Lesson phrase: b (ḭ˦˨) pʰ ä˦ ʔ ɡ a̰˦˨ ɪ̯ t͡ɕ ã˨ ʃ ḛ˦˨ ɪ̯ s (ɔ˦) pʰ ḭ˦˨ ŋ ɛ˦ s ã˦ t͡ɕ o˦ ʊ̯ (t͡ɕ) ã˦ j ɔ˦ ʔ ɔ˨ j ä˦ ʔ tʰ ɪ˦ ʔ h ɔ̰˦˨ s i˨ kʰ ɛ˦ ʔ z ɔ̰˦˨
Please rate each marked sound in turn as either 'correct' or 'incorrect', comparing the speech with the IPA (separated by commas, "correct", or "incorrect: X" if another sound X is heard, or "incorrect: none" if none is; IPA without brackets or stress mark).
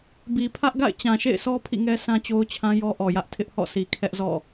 incorrect: i˨, correct, incorrect: t͡ɕʰ